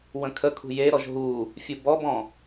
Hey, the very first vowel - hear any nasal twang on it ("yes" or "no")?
yes